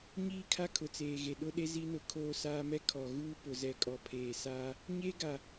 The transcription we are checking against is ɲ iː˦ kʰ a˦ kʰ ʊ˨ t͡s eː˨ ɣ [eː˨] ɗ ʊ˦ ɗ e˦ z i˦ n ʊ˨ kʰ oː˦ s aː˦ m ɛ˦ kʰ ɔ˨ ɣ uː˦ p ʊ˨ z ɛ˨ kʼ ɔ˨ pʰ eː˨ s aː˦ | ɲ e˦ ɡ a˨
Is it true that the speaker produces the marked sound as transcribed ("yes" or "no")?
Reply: no